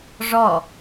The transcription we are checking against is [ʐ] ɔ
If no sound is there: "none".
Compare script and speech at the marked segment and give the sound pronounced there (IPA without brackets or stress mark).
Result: ʐ